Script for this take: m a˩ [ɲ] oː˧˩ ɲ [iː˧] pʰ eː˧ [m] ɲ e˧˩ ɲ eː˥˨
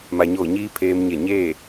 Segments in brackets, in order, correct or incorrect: correct, correct, correct

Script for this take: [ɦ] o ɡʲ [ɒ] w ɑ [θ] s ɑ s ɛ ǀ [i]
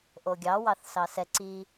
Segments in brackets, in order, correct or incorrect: incorrect: ʔ, incorrect: ɑ, correct, correct

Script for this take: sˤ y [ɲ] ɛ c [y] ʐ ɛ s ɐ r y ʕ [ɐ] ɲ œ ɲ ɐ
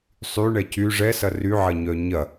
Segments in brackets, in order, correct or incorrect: incorrect: ɳ, correct, correct

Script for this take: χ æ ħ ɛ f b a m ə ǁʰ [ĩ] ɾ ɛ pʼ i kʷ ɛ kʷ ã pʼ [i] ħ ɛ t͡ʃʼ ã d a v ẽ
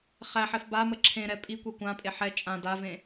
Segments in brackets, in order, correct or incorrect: incorrect: ẽ, incorrect: e

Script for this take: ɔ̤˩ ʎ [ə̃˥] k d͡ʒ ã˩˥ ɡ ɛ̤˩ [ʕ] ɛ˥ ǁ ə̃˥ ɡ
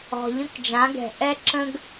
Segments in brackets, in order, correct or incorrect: correct, incorrect: ʔ

